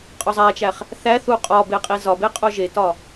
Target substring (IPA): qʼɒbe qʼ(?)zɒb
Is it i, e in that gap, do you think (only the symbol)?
i